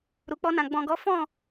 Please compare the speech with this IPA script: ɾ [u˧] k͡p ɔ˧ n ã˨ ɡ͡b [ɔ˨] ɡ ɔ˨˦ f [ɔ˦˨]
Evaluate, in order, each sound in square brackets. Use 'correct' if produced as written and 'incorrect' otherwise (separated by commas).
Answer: incorrect, incorrect, incorrect